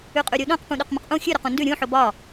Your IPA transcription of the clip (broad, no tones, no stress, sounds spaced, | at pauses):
ʉ qʼ ʉ ɾʲ u ɗ õ q p ũ ɗ o q m ə̃ q ʔ ũ xʲ ʉ ɾ o q ũ n d ʉ ɾʲ ũ ħ o b ɒ